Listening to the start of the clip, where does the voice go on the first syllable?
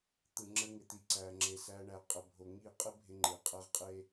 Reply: low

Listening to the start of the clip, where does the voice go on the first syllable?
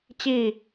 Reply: falling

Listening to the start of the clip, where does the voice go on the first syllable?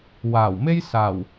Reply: low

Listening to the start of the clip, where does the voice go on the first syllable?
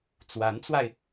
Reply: rising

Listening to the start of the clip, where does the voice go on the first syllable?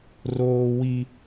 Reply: high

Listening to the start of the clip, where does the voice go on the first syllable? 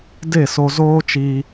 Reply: falling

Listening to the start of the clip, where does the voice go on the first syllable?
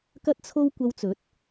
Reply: high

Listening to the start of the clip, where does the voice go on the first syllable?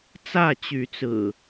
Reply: falling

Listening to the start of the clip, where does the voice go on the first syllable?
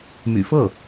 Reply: low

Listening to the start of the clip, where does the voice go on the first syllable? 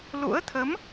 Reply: rising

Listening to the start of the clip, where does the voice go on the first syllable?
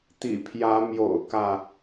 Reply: low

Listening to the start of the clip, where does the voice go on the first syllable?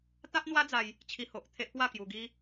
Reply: high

